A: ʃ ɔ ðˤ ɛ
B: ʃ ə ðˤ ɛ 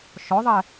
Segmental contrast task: A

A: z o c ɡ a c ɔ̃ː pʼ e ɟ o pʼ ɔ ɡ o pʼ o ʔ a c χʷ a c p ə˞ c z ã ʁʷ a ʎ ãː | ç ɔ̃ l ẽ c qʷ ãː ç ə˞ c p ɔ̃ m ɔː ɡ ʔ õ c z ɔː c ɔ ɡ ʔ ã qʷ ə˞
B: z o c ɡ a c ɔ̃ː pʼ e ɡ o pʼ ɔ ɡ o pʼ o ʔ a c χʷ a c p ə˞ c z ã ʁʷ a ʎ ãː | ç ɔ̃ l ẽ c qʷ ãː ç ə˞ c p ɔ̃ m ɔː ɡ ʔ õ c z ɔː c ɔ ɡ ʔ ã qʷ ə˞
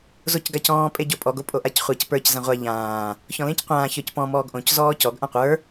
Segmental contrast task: A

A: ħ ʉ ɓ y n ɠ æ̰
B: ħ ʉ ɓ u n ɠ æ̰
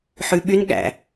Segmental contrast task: A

